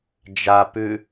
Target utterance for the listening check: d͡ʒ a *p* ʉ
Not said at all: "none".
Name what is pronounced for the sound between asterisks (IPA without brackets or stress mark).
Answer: p